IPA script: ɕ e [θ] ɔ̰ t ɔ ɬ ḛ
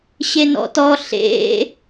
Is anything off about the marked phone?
yes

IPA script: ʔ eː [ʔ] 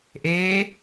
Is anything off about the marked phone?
yes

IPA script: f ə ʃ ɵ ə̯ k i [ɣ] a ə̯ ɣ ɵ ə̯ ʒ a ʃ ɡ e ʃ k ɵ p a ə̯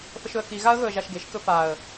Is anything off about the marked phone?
no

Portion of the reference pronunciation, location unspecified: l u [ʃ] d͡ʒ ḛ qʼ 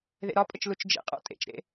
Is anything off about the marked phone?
yes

